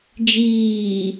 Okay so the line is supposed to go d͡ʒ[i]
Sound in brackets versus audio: incorrect: iː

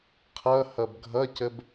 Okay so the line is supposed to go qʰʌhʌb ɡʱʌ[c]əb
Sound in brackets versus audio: correct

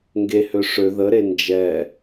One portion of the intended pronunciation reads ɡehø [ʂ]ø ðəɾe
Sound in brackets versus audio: correct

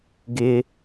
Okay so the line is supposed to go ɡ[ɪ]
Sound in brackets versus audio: correct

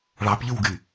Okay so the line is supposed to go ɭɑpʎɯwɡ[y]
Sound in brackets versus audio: correct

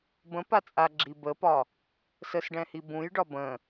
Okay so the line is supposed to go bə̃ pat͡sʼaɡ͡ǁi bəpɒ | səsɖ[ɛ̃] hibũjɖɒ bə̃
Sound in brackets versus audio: correct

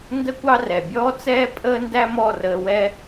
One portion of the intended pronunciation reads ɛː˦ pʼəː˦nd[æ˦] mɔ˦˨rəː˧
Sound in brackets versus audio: correct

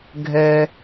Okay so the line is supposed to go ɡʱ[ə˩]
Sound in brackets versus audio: incorrect: ɛ˩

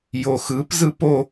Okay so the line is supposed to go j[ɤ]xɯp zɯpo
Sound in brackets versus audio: incorrect: o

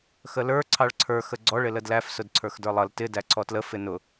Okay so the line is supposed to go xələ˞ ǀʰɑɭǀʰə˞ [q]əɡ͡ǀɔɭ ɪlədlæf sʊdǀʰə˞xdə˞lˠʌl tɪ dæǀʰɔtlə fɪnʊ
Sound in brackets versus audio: incorrect: x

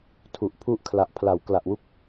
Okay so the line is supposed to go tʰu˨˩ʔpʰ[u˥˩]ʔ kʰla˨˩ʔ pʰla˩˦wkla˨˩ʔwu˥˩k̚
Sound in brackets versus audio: correct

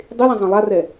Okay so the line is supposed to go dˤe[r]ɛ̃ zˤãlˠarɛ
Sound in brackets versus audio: incorrect: l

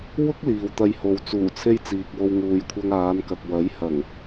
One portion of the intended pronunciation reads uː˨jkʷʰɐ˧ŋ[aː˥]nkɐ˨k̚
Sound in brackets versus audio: incorrect: aː˨˧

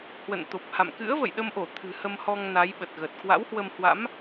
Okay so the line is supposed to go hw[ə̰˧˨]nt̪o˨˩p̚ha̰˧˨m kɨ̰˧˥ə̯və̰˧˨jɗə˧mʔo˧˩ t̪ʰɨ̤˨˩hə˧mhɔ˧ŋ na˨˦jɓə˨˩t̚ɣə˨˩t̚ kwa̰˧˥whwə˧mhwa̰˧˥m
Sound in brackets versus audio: correct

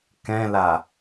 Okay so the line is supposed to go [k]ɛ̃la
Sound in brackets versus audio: correct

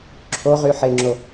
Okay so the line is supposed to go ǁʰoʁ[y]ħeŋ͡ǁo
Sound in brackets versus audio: correct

